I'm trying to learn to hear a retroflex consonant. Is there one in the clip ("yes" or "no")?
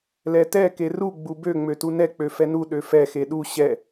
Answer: no